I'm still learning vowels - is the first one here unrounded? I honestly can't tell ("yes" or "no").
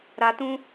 yes